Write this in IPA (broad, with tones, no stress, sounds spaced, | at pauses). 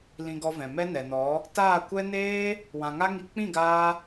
l ĩ˧ ɡ ɔ˧ v ɛ̃˨ m ɛ˦ n ɛ˨ n ɔ˨˦ | t aː˦˨ kʷ ɛ˦ n eː˦ | w ã˧ ŋ a˦ ŋ i˧ k͡p ĩ˦˨ ɡ aː˧